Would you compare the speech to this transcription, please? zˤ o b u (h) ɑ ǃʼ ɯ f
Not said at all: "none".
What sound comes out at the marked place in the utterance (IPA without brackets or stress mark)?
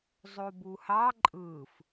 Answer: h